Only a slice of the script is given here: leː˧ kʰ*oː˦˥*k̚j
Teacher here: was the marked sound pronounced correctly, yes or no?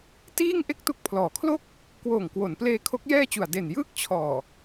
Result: no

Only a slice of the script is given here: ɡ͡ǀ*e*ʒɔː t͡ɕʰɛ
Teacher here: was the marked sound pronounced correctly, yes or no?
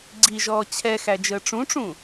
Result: no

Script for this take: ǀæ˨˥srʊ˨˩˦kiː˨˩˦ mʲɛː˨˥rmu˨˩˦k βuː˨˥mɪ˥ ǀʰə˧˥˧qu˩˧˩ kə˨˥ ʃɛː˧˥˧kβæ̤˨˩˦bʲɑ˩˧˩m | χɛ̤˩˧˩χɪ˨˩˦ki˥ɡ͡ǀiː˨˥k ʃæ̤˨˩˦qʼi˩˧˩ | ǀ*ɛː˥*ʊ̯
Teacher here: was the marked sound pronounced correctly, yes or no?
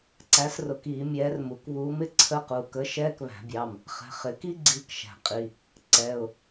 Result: no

